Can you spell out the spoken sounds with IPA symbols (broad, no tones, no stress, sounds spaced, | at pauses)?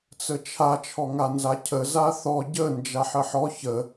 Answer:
t͡s ə t͡ʃʰ a t͡ʃʰ ɔ ŋ a n z a cʰ ə z a θ ɔ ɟ ə n d͡ʒ a ħ ə ħ ɔ ç ə